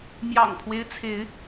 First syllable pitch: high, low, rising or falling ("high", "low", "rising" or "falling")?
low